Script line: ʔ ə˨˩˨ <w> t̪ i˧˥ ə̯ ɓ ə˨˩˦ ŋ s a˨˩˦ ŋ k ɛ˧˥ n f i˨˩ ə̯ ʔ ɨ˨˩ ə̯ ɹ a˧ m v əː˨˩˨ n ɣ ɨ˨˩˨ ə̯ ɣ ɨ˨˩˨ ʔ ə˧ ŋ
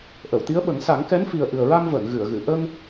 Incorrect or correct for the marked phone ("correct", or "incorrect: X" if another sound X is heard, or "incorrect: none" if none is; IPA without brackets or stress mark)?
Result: correct